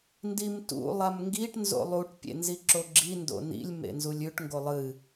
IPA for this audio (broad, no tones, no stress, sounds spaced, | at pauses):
n d i m t ṵ lˠ a m ŋ ɡ i ʈ n z o̰ lˠ u ʈ pʲ ḛ n z i ǁ o ɡ͡ǁ i n d o̰ n ḭ lʲ m ḛ n z u lʲ ʉ ʈ ŋ ɡ o lˠ ɨ